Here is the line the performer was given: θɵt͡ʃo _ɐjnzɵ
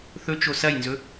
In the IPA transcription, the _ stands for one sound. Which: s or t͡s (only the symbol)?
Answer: s